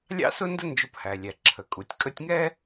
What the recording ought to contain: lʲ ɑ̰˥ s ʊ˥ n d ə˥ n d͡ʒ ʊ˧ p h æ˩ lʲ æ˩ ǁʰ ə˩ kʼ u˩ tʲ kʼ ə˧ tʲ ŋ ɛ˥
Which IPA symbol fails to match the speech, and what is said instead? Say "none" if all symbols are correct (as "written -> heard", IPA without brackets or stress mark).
none